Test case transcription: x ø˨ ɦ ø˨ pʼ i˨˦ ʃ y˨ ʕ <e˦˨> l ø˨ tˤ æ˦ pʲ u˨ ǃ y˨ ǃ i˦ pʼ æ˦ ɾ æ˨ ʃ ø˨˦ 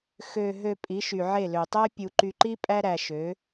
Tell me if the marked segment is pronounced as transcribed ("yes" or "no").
yes